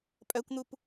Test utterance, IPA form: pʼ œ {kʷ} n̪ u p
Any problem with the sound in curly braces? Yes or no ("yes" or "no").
no